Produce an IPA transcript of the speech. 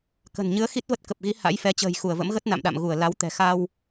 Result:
k ə̤˨˩ n ɲ ɨ˨˦ ə̯ x i˦˥ t̚ v ə˦˥ t̚ k ə˨˩ p̚ ɣ i˨˦ h a̰˧˥ j f ɛ˨˦ t͡ɕ ə̤ː˨˩ j x u˧˩ ə̯ v ə̰˧˥ m ɣ ə˦˥ t̚ n a̰˧˨ m ɗ a̰˧˨ m ɣ u˧˩ ə̯ l a˨˦ w t̪ ɛ̤˨˩ x a˧ w

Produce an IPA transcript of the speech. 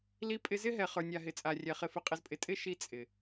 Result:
l i˧ pʼ ɪ˧ z ɪ˦ ɦ ɛ˨ χ ə˞˨ nʲ a˨ ɦ ɪ˨˦ t͡sʼ a˨ rʲ ɛ˨ χ ɪ˨ f ɪ˨ qʼ ɪ˨ z pʼ ɪ˨ tʼ ɪ˦ ʃ i˦ t͡sʼ ɪ˨

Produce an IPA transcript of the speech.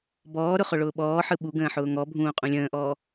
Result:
b ɔː ɾ ʊ χ ʊ ɭ ʊː ɓ ɔː ħ ɯ ɓ u ɡ ə̃ː ħ ʊː ŋ ɔ bʱ ũː qʼ ũ lʲ ə̃ː ʔ ɔː

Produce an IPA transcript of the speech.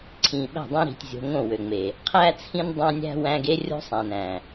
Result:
ǀʰ ĩ˨ ɓ æ̤˦˨ dˤ ĩ˦ ɾ i̤˨ tʲ zʲ o̤˨ ŋ õ˦˨ w ø˨ ŋ͡m e˨ | qʰ æ˦ t͡sʰ ĩ˦ n dˤ æ̃˦ nʲ æ̤˦ w æ̃˦ ɡ e˦ rʲ o̤˦ sˤ æ̃˨ n æ̃˨

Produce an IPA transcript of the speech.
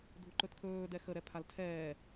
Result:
dʱ u ǃ ɵ t kʰ ɵː d ɛ x ə ɾ ɛ pʰ a l tʰ ɛː

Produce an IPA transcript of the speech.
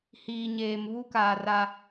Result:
h iː˨ ɲ eː˨ m β u˦ k aː˨ r a˦

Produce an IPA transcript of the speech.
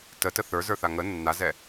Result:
t ə t ə θ ə˞ z ə˞ θ a ŋ ə nː a z ɛ

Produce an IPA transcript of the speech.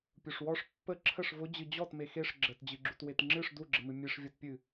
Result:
pʲ u ʂ w ɔ ʂ pː ə ǁʰ ə ʂ v ʊ d͡ʑ ɨ d͡ʑ ɔ t m e x e ʂ ɡ͡ǁ ə t d͡ʑ ɨ ɡ͡ǁ u t w e t ŋ͡ǁ ɨ ʂ d u ɡ͡ǁ ə m ɨ mʲ e ʂ vʲ ɔ t pʲ ɨ

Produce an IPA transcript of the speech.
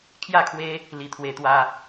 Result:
kʰ j a˥˧ kʰ w e˦ | l i˧ t̪ʰ w e˧ t̪ w a˧

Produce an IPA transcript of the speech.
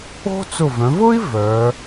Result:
o̤˥ t͡s ʊ˧˩ v œ̃˩˧ v ʊ˥ i̯ v œ˩˧

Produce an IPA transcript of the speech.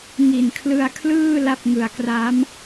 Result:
ŋ i˨˩ n kʰ l ɯ˧ a̯ kʰ l ɯː˥˩ l a˥˩ p̚ ŋ ɯ˨˩ a̯ k r a˦˥ m

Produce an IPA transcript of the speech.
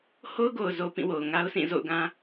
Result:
h o˦ ʊ̯ ɡ o˨ ʊ̯ z o˨ p ĩ˦˨ w o˨ ʊ̯ ŋ a˦ ʊ̯ sʰ ĩ˦˨ z o̰˦˨ ʊ̯ ɡ ã˦

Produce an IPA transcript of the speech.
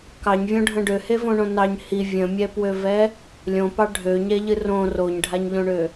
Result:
k ɑ ɲ vʲ õ ɖʱ ə̃ ɖ ø h e v õ ɳ õ n ɑ ɲ h i vʲ ə̃ mʲ ɛ p w ø v ɛ | lʲ õ p ɑ ɖʱ ø ɲ ɛ ʎ ɨ r õ r o ɲ ɖʱ a ɲ ʎ õ ɳ ø

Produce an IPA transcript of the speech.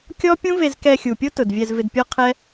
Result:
kʲ ɔ˦ pʲ ũ˦ v e˧ z k ɛ˧ xʲ u˨ pʲ o˦ t ʊ˨ d vʲ ɛ˧ z v ɪ˧ d pʲ ɔ˦ qʰ ɛ˦

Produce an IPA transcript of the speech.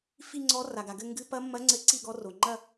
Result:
f i˥˧ ŋ͡ǀ ɔ˧˥ r a˩ ɡ a˩ ɡ ɘ˥˧ ŋ ɡ ɨ˧˥ p ɐ˧˥ mː ɐ˧˥ ŋ͡ǀ ɘ˧˥ ǀ i˥˧ ɡ ɔ˧˥ r o˩ ŋ͡ǃ ɐ˥˧

